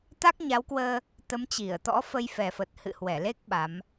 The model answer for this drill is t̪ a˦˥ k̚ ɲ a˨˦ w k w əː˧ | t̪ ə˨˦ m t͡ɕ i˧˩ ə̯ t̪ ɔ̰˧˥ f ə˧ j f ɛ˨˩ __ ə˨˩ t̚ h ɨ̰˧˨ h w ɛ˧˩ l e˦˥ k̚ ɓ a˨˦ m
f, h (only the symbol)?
f